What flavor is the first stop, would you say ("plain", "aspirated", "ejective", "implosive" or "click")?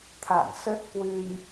aspirated